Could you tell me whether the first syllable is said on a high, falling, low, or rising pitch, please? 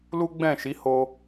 high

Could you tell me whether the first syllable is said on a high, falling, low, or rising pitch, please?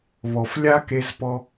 low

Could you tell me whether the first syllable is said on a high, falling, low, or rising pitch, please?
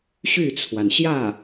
falling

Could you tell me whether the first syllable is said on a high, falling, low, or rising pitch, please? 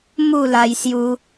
falling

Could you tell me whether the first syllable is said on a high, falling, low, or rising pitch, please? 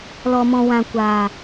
low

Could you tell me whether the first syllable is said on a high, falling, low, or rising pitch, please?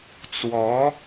rising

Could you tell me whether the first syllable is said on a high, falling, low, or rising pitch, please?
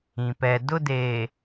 low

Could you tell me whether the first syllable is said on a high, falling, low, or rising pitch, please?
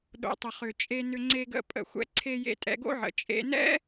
low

